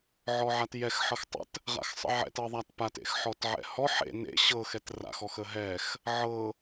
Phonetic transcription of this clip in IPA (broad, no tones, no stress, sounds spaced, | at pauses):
ʕ ɔ ʕ a t j ɛ x ħ ɤ x tˤ ə̰ t | ʁ a̰ x sˤ ə̰ ʕ ɛ̰ t ɤ ðˤ a t p a t ḛ x ħ ɔ t ʕ ɛ̰ h ɔ ħ ḛ n ḛ ɕ ɤ x ɛ t r a̰ x ɔ x ə ɦ ɛ x | ʕ ɤ